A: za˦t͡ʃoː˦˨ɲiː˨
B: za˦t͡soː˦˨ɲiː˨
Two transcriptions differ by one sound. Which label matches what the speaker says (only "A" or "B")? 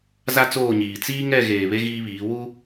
B